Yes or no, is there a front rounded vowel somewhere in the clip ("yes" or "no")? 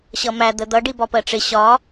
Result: no